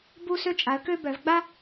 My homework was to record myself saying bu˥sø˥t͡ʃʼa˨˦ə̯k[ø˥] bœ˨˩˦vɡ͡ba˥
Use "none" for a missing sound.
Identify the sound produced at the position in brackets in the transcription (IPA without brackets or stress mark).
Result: ø˥